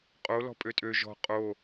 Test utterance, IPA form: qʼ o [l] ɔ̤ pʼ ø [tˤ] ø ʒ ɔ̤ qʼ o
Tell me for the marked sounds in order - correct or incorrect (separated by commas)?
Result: correct, incorrect